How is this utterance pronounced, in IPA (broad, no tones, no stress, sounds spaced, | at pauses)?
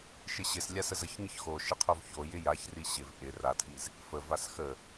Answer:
ʃ ɪ ɕ ɪ s lʲ a s ə z ə ç ɲ ɘ ç x o ʃ ɪ qʰ o v ç o j ɪ j a ç r i ɕ ɪ v ʔ ɪ r a tʰ i z | f ə v a s x ə